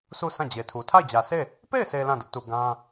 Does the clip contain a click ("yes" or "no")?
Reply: no